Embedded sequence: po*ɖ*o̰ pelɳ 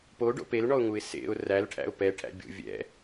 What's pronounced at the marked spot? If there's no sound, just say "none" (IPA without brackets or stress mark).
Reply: ɖ